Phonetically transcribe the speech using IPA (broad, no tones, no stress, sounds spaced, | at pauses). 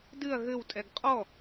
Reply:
d ɨ ɐ̯ ɣ ɘ w tʼ ɛ ɡ qʼ ɔ